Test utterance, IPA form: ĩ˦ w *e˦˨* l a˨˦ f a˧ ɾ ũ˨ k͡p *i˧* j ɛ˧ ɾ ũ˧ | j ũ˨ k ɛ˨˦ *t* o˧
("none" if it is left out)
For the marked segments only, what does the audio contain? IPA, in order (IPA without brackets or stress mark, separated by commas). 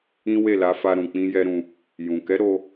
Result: e˦˨, ĩ˧, ɾ